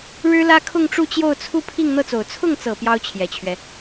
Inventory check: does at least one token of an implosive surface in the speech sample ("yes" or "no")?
no